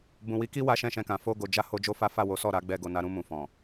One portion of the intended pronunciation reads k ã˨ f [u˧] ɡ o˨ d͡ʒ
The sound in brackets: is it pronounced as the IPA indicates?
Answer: no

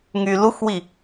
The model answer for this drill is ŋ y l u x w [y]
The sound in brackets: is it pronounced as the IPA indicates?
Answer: no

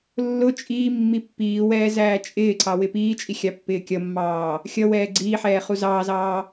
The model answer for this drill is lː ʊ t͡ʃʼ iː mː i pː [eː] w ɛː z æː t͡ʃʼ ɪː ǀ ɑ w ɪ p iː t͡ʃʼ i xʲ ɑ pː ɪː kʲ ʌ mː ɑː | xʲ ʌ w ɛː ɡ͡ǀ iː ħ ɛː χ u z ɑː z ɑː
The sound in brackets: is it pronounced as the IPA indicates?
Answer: no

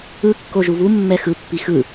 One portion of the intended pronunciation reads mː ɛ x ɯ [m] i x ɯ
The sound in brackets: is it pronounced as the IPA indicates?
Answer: no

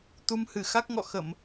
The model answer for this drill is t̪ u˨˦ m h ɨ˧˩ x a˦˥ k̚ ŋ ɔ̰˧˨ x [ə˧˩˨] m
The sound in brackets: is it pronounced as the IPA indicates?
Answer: yes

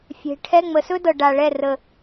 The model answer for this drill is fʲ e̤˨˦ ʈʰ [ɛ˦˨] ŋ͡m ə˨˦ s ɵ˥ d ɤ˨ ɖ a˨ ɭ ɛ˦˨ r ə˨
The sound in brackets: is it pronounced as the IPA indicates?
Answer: no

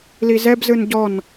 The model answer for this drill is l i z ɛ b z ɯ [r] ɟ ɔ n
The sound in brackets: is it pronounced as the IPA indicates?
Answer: no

